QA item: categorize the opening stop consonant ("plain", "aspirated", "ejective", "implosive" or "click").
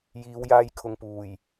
aspirated